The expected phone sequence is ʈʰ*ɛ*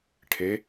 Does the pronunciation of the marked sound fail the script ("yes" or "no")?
yes